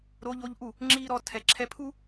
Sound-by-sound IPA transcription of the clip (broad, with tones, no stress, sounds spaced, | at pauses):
ɾ o˧˥ ʎ o˧˥ ʎ ʔ u˥˩ | ŋ͡ǁ iː˥ ɾ ɔ˧˥ tʰ ɛ˨˩˦ ǁʰ ɛ˧˥ pʰ u˥